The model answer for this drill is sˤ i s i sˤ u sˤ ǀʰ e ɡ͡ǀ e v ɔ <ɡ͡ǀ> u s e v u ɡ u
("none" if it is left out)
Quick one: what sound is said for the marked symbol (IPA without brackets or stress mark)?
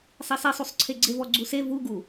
ɡ͡ǀ